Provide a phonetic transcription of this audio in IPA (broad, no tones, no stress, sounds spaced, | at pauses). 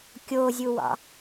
kʲ o zʲ u w ɑ̰